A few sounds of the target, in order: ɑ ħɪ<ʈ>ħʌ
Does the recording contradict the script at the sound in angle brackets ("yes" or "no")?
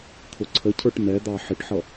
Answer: no